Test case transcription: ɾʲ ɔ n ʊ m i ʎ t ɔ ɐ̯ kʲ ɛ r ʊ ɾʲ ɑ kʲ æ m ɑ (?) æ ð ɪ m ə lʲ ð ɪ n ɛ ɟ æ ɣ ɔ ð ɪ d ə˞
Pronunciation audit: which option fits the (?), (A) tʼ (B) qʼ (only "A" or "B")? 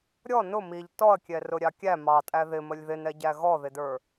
A